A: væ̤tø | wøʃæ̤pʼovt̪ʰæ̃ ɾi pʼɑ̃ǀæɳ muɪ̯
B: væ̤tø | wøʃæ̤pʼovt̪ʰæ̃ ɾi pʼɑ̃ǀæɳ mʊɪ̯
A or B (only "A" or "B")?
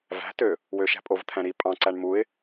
A